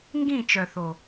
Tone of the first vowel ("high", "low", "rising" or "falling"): falling